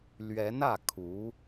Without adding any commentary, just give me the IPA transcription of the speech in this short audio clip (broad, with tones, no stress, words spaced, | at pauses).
lɥɛ˧˥nä˥˩ kʰu˧˥